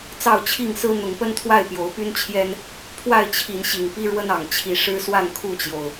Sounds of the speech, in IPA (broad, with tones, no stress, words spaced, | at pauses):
t͡sɑ˥˨ʊ̯t͡ɕʰi˥˨ŋsɹ̩˦ n̪ʊ˨˦ŋpə˦nt̪ʰwa˥˨ɪ̯ pjo˨˦ʊ̯py˦nt͡ɕʰjɛ˦n | pʰwa˥˨ɪ̯t͡ɕʰi˨˦nɕi˨˩ŋ pi˦ɻwə˦nɑ˨˩ŋ t͡ɕʰi˨˦ ʂɻ̩˦swa˥˨nkʰu˥˨t͡ɕjo˩ʊ̯